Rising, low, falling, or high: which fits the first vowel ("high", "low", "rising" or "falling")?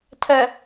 low